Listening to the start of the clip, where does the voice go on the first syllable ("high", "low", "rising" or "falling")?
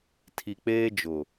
low